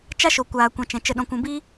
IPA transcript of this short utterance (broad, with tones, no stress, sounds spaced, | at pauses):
t͡ʃ a˦ ʃ o˧ kʷ aː˧ kʷ ã˧ t͡ʃ ɛ̃˧ t͡ʃ ə˧ ɗ ɔ̃˧ kʷ ũ˧ b i˦